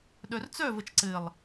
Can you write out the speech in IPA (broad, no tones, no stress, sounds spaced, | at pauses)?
ɗ œ r t͡s œ v ə t͡ʃ ǀ ɘ lˠ